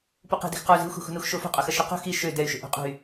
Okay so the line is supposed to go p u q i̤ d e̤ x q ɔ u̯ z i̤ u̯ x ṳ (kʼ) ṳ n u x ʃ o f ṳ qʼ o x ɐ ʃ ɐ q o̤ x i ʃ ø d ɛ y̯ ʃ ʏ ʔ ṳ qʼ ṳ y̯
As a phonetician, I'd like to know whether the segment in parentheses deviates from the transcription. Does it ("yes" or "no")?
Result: yes